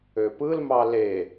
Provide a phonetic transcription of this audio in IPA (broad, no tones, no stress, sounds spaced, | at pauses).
ø p ɯ l m ɑ l e